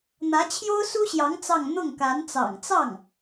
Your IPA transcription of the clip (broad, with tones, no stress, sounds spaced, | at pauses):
n̪ ä˧˥ t͡ɕʰ j o˥ ʊ̯ s u˥ ɕ j ɑ˧˥ ŋ t͡s ɑ˥˧ ŋ n̪ ʊ˥˩ ŋ k a˧˥ n t͡s ɑ̰˨˩ ŋ t͡s ɑ˥˩ ŋ